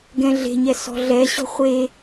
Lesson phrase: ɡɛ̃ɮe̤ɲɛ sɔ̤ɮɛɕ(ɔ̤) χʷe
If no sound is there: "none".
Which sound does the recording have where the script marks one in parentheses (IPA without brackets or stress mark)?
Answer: ɔ̤